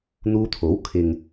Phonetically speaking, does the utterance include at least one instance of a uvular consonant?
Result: no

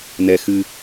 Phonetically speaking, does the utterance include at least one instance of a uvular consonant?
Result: no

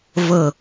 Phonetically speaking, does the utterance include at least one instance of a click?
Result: no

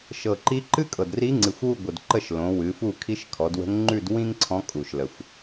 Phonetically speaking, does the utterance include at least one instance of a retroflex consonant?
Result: no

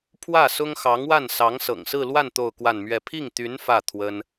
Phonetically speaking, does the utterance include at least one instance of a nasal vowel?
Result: no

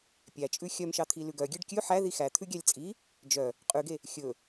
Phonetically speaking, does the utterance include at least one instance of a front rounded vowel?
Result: yes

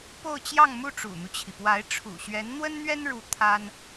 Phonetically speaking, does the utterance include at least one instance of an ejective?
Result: no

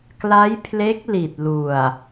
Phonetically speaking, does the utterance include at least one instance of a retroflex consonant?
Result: no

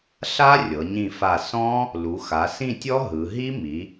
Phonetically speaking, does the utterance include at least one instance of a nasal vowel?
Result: yes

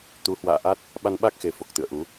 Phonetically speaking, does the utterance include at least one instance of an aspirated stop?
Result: no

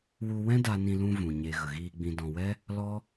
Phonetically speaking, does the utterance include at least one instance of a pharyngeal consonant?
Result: no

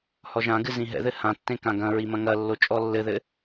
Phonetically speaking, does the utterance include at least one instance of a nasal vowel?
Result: yes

